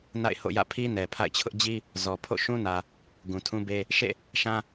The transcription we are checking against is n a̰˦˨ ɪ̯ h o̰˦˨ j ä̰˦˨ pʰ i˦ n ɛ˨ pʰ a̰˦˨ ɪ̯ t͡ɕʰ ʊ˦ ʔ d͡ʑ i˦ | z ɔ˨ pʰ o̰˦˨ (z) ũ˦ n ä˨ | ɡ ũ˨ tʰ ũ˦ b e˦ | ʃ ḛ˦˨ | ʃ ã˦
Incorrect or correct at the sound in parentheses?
incorrect: ʃ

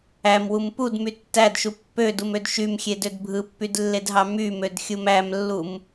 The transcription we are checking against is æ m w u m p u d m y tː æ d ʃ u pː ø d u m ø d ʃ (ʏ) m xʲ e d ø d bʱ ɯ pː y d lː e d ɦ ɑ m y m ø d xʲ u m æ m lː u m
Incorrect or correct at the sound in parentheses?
incorrect: y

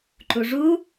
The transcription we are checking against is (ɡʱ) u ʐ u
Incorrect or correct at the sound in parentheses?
incorrect: ǃ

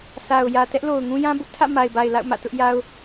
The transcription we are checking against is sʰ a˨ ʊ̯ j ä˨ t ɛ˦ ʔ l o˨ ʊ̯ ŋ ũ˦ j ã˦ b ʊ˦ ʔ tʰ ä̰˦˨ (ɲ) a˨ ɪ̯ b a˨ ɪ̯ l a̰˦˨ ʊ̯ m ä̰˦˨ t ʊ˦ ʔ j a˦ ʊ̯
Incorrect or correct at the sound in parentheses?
incorrect: m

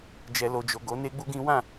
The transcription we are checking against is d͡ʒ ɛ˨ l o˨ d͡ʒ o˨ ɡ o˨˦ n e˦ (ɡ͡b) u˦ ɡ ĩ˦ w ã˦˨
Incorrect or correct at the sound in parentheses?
correct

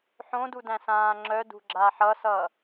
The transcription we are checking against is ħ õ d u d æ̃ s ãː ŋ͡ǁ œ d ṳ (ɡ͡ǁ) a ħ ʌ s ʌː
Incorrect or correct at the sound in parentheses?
correct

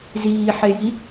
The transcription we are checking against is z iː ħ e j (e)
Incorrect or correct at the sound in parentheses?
incorrect: i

